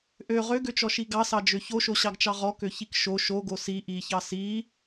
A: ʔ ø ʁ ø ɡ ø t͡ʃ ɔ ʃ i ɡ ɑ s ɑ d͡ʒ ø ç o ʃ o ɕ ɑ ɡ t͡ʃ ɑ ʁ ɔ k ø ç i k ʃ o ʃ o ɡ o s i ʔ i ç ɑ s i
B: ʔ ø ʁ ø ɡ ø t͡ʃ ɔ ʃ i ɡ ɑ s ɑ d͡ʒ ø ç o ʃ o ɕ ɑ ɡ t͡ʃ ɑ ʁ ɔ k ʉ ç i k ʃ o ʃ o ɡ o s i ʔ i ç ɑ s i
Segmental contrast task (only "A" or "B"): A